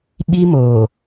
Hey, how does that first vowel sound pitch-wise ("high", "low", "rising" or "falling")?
high